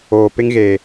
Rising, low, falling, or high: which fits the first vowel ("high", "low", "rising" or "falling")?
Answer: low